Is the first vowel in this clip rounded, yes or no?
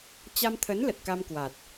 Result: no